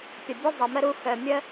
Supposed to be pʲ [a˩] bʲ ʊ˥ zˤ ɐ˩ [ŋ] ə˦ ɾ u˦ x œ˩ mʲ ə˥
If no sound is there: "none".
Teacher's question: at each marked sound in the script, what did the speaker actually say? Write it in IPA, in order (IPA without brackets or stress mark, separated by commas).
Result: ɐ˩, m